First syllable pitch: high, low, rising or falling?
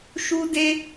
high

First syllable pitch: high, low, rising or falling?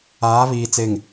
rising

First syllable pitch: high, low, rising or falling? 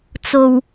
low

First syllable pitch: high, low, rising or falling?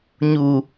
low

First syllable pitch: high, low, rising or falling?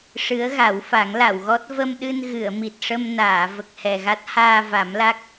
rising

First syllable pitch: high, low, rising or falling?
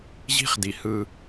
high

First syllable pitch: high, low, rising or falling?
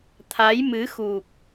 rising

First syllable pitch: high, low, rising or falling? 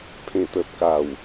low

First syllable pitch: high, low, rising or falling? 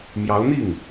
rising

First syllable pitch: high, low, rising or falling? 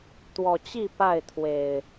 low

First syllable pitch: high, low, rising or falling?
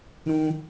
high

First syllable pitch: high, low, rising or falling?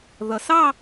low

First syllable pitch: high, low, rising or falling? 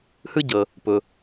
high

